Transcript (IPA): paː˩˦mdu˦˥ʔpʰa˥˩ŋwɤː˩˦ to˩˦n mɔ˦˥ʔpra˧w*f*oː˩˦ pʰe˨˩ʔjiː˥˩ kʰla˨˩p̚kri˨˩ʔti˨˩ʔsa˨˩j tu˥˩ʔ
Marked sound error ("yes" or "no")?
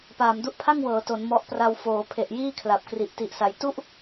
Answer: no